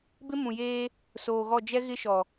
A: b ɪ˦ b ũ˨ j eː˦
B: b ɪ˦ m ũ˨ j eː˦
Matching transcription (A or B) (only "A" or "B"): B